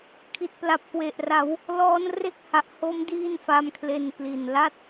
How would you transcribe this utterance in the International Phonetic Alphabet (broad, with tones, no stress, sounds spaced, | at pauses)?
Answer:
kʰ i˨˩ t̚ p l a˨˩ p̚ k w e˨˩ ʔ r a˩˦ w | l ɔː˦˥ n r e˥˩ k̚ h a˨˩ ʔ h o˦˥ m d iː˥˩ n f a˦˥ m kʰ l e˧ n k l i˨˩ n l a˥˩ t̚